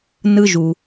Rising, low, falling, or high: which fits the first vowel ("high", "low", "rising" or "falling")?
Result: high